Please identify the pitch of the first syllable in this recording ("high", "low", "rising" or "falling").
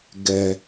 low